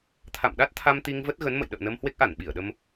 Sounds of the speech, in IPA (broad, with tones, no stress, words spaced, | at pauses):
t̪ʰa̰˧˨mɗa˦˥t̚t̪ʰa˧m t̪i˧ŋvə˦˥t̚ɣə˨˦nmə̰˧˨j ɗə̰ː˧˨nə˧m hwe˦˥k̚ʔa˧˩nɓi˧˩ə̯ɗə˧m